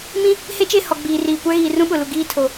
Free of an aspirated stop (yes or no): no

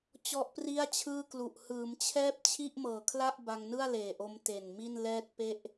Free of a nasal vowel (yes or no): yes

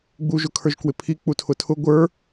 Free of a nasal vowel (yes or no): yes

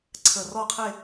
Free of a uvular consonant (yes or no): no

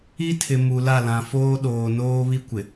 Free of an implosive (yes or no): no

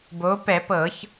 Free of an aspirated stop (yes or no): yes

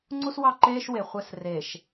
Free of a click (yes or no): no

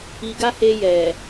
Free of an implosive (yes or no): yes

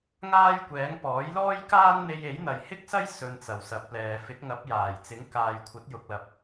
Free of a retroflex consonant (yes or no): yes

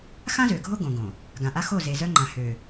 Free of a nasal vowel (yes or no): no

